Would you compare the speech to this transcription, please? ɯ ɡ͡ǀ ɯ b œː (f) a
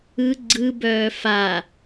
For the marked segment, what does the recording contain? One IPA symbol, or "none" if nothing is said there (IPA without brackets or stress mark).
f